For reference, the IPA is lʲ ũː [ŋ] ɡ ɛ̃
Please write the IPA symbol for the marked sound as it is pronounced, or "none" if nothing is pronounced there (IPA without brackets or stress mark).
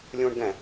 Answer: ɳ